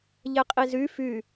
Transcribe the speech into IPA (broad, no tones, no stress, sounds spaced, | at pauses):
ʎ ɛ qʼ i z y f y